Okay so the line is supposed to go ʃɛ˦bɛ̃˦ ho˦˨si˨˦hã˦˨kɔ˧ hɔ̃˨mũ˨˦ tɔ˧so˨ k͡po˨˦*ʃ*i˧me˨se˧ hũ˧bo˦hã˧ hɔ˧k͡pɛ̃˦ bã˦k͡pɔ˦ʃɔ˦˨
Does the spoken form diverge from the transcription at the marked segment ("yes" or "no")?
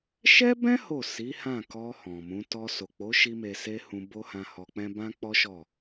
no